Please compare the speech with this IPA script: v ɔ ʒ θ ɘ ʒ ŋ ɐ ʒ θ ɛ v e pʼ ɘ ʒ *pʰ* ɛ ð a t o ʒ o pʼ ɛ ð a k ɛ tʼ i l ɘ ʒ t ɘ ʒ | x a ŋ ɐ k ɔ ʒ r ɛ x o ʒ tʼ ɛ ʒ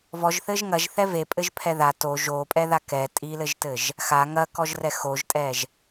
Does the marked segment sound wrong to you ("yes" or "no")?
no